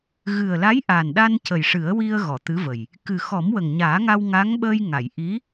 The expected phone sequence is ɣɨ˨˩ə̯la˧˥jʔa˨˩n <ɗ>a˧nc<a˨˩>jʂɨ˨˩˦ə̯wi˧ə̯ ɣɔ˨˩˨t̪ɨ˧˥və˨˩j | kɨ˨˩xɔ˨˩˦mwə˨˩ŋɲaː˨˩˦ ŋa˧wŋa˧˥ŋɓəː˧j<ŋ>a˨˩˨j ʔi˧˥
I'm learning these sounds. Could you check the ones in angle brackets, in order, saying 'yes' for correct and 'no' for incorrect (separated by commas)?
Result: yes, no, yes